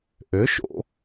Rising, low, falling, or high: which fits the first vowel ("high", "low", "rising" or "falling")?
rising